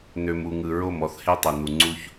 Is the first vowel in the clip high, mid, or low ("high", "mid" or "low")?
mid